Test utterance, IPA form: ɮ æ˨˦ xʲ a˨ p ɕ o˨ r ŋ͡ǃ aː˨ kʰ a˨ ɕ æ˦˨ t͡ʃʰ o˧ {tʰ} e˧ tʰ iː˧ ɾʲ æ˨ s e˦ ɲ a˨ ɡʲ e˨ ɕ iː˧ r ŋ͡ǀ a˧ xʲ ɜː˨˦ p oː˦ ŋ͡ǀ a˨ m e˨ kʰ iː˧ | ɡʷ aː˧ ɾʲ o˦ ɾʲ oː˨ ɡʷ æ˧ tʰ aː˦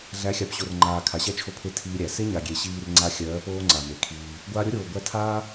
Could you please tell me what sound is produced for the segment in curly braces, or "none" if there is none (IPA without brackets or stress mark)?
pʰ